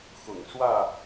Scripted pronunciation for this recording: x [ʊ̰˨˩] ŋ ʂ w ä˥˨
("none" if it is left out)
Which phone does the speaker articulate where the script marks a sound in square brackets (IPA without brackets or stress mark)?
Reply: ʊ̰˨˩